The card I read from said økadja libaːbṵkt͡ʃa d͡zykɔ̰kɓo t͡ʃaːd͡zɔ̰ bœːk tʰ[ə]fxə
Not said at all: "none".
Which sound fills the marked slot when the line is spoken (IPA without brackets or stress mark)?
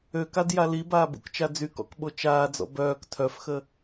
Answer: œ